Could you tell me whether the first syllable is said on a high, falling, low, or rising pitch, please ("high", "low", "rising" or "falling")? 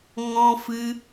high